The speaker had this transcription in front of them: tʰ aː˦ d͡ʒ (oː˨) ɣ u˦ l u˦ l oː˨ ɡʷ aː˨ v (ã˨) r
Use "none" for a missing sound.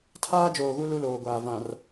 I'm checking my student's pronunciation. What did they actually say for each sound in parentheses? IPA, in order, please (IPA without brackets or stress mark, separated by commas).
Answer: oː˨, ã˨